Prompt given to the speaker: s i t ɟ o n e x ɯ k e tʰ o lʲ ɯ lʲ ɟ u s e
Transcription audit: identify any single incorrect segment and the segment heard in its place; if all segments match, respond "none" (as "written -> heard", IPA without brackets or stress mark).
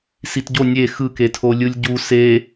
n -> nʲ